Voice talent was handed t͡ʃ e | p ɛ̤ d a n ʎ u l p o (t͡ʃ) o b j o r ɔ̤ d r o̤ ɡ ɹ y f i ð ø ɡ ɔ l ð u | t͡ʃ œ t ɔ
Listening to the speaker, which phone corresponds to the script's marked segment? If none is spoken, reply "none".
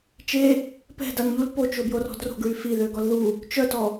t͡ʃ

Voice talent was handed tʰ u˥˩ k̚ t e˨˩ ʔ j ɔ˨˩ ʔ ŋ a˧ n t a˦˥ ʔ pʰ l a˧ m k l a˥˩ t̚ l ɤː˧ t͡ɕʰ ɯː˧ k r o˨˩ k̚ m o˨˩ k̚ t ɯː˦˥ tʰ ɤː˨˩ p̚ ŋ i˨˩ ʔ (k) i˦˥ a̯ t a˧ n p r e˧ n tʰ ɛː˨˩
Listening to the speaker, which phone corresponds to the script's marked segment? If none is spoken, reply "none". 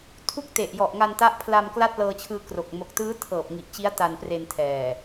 t͡ɕ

